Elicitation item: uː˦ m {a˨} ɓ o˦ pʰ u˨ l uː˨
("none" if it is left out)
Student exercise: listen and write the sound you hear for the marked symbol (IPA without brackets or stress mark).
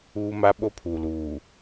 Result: a˦